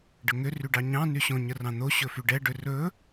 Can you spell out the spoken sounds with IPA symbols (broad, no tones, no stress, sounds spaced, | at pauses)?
ɖ ə ŋ ʏ r y ɖ ɑ ɲ ɑ̃ n y ɕ õ ɲ ə r ɑ̃ n̪ o ɕ ɵ f y ɖ ɛ ɖ ʏ r ɵ